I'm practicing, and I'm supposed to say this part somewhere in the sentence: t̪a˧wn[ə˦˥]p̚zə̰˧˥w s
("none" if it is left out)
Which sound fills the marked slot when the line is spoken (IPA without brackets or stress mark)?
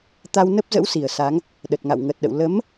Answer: ə˦˥